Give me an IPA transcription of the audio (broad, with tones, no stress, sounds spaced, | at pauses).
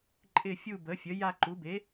ǃʼ ɪ˦˨ fʲ u˦˨ b ə˩˥ fʲ ə˩˥ j a˦˨ ǃ u˩˥ b e˩˥